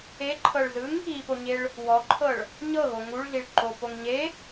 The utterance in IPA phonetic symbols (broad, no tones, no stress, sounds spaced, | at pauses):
e ǃʰ ɤ ɭ z ɯ ŋ | i p o ɲ e ɭ | w ɔ ǃʰ ɤ ɭ | ɲ ɤ ɣ o ŋ u ɭ ɮ i ɭ ǃ o p o ŋ ɲ e